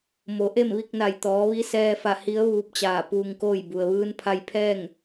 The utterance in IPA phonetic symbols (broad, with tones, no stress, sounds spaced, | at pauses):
m o˩˧ ʔ e˥˨ m ʋ i˥˨ k̚ n a˧˩ j t̪ ɔː˩˧ ʋ i˧˥ s ɛː˧ f a˧˩ h i˧˥ ə̯ ʋ uː˧˥ p̚ t͡ɕ aː˧˩ p uː˧ ŋ k oː˥˨ j b u˩ ə̯ ʋ ɯː˧ n pʰ a˧ j pʰ ɛː˥˨ ŋ